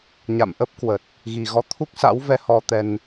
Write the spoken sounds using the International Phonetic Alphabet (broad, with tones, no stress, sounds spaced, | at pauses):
ɲ a̰˧˨ m ʔ ə˦˥ p̚ k w ə˨˩ t̚ | ɣ i˨˩ ɣ ɔ˨˦ t̪ʰ u˦˥ k̚ s a̰˧˥ w v ɛ˧ h ɔ˧ t̪ ɛ˧ n